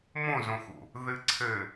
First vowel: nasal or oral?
nasal